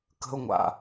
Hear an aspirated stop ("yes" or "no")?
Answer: no